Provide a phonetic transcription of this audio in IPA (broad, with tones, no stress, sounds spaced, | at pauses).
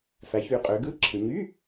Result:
f æ˩˧ ç y˩˧ qʼ ø˩˧ ɡ ɯ˧˥˧ ǁʰ ɯ˩˧ ɲ y˧˥˧